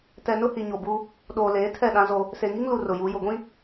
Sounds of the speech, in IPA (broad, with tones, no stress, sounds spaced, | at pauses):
t ɛ˨ n ʊ˦ h i˨ ɲ o˨ b u˦ | ɗ oː˨ l eː˨˦ tʰ ɛ˦˨ ɗ ã˦ z o˦ | s e˨ ŋ i˦ ŋ l u˨ r ʊ˨ j u˨˦ j ʊ˨ ɡʷ ĩ˦